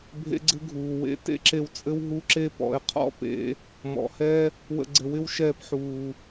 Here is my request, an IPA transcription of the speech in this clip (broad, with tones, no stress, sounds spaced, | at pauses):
bʱ ḛ˦ ɡ͡ǀ ɘ˦ ɡʱ uː˨ w ḛ˧ t ḛ˦ ǁ e˧ w t͡sʼ ɘ˦ w ɦ u˦ ǁ e˦ p ɔ̰˨˦ e̯ qʰ ɔ̰˦ p ḛ˧ | m ɔ̰˨ h ɛ˦ | w ə̰˧ ɡ͡ǀ ɘ˨˦ w ɪ˦ w ʃ ɛː˧ p ħ uː˨